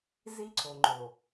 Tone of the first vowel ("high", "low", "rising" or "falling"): high